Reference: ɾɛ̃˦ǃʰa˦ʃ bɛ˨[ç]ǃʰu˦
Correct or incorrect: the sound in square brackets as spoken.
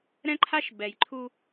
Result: incorrect: j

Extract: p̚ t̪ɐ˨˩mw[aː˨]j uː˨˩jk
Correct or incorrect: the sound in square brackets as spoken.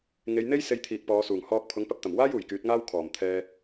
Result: incorrect: aː˥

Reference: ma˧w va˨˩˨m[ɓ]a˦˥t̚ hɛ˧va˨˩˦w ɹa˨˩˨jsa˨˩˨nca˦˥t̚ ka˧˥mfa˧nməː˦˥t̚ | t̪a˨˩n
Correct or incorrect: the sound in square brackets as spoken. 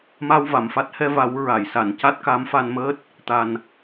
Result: incorrect: f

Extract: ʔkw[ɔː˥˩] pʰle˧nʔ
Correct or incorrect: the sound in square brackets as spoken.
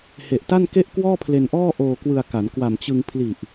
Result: correct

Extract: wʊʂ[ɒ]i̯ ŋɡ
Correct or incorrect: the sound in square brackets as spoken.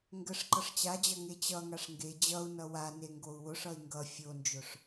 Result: incorrect: ʌ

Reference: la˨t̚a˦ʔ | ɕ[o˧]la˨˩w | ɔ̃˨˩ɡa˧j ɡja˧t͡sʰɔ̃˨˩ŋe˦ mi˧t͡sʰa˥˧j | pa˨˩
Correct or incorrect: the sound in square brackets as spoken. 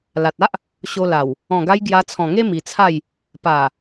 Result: correct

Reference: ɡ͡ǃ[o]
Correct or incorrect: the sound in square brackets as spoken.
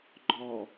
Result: incorrect: ɔ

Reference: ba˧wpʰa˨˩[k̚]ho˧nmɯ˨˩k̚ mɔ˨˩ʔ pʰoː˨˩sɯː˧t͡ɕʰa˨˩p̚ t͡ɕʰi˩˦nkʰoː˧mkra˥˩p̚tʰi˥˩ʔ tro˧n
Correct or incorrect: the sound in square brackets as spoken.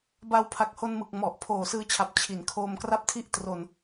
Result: correct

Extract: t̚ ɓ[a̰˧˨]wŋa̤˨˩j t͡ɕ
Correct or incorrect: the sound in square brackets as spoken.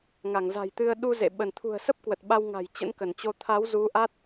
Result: incorrect: a˧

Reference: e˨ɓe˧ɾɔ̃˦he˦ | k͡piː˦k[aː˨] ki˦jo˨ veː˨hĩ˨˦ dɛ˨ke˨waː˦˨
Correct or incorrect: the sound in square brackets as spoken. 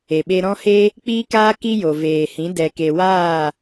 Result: incorrect: aː˦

